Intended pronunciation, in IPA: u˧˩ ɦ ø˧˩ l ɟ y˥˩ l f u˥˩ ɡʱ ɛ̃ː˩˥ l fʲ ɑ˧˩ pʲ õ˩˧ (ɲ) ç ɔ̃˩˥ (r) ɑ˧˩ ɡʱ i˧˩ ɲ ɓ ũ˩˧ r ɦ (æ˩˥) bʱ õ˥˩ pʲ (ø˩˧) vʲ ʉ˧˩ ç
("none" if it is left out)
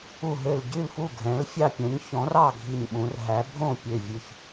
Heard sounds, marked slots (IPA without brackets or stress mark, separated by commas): ɲ, r, æ˩˥, ø˧˩